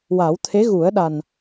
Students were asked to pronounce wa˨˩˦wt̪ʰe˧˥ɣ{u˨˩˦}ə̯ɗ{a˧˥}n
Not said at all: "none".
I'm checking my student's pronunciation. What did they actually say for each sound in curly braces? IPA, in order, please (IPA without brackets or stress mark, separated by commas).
u˨˩˦, a˨˩